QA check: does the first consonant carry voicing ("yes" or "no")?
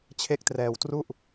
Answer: no